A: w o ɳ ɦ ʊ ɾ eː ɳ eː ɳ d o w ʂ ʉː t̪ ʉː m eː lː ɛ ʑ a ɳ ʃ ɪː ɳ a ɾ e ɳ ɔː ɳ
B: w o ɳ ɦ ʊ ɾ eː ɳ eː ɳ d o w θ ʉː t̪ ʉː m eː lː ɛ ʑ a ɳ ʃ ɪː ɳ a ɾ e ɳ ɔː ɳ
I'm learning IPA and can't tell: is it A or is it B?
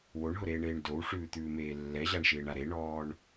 A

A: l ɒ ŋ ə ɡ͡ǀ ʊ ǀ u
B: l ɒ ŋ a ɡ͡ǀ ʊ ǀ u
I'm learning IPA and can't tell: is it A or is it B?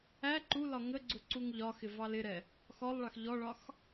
A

